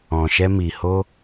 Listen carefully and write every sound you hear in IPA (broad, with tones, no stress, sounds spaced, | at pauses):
ɔ̃˨ ʃ ɛ˧ m i˨ h o˧